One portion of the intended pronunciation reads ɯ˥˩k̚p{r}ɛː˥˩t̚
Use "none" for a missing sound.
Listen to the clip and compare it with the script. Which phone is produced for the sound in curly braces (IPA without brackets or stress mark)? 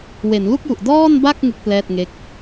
l